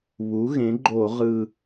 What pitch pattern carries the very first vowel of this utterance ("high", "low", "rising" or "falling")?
rising